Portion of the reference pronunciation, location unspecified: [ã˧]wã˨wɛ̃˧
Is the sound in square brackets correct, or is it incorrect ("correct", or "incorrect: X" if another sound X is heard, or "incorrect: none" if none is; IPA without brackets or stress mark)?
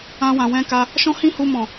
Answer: correct